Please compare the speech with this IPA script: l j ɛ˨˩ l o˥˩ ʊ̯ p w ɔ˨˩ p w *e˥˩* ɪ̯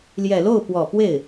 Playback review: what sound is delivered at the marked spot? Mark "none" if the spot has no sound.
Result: e˥˩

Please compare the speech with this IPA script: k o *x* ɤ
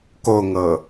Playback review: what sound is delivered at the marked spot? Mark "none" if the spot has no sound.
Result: ŋ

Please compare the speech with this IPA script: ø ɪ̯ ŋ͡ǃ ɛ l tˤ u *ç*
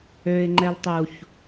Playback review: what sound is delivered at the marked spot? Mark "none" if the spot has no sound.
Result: ç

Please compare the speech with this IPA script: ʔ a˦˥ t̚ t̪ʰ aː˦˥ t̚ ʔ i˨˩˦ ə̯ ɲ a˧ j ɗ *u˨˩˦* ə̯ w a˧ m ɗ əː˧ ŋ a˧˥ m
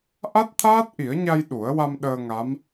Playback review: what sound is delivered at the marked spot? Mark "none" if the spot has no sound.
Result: u˨˩˦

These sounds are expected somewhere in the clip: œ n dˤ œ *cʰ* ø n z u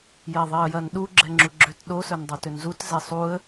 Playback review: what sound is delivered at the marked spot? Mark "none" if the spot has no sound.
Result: t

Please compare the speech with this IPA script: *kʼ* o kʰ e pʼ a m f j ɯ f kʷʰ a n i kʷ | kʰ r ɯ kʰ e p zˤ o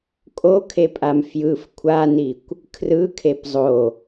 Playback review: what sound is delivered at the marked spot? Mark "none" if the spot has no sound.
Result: kʼ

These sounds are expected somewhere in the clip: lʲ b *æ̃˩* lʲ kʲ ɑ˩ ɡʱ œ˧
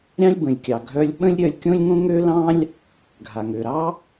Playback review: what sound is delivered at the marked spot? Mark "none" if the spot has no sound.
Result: ə̃˩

